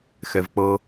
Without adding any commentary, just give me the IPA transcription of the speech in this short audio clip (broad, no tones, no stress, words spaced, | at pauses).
xɛvk͡pɤ